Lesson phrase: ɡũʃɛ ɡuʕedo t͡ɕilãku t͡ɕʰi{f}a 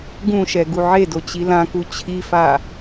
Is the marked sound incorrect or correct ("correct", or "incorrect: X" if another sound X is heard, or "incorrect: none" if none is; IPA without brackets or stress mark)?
correct